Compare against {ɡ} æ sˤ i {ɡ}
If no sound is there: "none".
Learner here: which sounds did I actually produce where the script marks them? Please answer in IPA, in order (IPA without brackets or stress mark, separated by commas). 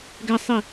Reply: ɡ, none